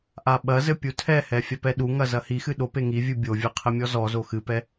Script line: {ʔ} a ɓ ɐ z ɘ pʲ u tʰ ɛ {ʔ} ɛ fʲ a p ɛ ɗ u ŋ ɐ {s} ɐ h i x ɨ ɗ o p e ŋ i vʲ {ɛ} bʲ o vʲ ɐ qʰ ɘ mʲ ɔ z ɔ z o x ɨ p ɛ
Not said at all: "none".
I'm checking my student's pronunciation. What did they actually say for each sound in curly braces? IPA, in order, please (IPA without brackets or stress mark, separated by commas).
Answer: ʔ, h, z, ɨ